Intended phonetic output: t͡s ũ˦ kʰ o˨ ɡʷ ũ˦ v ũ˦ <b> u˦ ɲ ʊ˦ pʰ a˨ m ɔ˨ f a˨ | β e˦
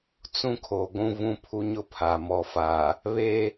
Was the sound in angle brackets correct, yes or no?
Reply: no